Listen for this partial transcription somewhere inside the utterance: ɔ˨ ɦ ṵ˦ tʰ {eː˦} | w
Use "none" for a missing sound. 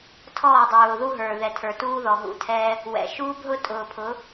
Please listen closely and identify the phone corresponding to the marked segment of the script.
ɛː˦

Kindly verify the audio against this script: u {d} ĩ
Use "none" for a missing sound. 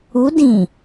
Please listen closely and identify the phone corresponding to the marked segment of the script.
d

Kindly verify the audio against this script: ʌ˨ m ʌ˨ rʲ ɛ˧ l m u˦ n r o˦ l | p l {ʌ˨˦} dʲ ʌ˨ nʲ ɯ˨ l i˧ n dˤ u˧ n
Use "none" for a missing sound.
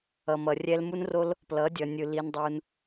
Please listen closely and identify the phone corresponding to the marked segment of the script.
ʌ˨˦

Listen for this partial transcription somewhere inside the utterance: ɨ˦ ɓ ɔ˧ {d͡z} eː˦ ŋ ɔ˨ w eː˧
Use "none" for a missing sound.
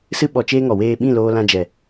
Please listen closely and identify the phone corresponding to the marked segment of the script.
t͡ʃ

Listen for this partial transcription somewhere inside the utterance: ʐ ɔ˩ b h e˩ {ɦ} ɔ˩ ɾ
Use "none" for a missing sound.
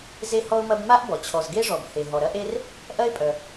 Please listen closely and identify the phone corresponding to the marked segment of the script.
ɦ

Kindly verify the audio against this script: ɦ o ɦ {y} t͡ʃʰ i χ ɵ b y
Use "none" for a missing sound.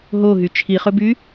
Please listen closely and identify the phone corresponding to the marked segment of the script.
y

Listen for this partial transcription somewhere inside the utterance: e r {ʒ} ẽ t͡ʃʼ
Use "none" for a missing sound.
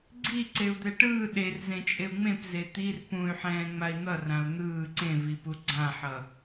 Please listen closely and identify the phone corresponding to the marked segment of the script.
z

